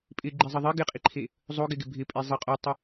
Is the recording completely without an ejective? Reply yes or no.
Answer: no